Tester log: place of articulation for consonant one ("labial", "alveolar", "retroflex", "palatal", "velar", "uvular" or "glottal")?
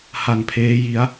glottal